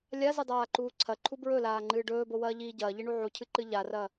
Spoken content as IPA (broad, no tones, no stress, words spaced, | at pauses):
lʲazɨdˤaːǃuː ǀʰɐǃʰu bɹɵlaːŋ͡ǃɨː ɖɵːbowɐːʎiː ɟɐːʎiɳu ʕucʰɨǃɨ ʎarɐ